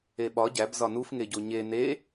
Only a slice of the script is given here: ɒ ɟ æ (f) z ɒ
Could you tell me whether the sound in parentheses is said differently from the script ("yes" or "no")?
yes